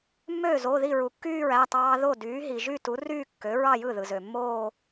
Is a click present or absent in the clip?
absent